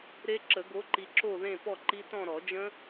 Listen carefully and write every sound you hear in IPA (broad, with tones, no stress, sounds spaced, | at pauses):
ɾ e˦˥ ǁ ə˨˩˦ ɡ o˨˥ ǃ i˨ ǁ o˥˧ ð ẽ˥˧ p ɔ˥˧ ǃ i˦˥ t ɔ̃˥˧ ɾ ɔ˨˩˦ d͡ʒ ə̃˦˥